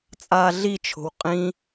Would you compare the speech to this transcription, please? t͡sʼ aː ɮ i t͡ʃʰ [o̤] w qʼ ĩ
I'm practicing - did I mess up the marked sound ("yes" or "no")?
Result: no